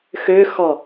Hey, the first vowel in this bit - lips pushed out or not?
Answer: yes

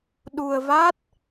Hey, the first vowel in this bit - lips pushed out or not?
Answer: yes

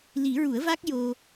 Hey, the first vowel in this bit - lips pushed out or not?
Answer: no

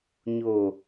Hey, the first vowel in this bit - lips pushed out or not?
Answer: yes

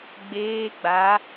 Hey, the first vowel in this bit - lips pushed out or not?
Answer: no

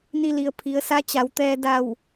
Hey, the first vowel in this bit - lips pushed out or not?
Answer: no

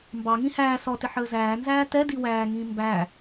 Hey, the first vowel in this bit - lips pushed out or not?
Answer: no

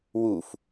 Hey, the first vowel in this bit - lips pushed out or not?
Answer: yes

